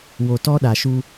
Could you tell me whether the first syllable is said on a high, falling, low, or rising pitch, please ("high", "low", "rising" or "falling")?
low